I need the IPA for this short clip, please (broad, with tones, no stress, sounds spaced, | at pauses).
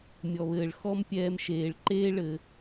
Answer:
mʲ ɔ˨ β ɘː˨ ɭ x ɔ˦ m pʲ ɛː˧ m ʃ eː˨ ɭ ǃ eː˦ ɭ ɘ˧